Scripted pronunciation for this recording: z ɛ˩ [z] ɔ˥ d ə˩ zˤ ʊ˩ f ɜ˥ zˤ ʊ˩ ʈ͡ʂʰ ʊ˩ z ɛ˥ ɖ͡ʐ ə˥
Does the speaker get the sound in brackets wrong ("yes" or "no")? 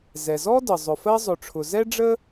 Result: no